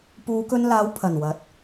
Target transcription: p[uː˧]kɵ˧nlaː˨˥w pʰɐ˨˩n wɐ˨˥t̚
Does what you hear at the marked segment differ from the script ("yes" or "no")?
yes